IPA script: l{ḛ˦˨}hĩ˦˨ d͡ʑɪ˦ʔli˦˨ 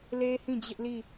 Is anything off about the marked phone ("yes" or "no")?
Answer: yes